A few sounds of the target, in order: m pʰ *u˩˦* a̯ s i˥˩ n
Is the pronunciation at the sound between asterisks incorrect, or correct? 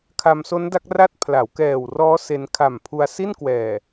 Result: incorrect